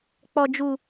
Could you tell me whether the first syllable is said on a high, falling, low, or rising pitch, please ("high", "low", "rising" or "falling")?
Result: low